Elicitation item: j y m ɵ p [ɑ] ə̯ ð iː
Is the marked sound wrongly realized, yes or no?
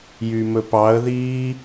no